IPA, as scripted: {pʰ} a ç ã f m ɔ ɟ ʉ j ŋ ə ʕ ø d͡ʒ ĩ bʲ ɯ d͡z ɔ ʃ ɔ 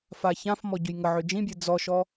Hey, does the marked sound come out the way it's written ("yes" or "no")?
no